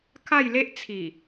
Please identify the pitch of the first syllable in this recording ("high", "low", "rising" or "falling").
falling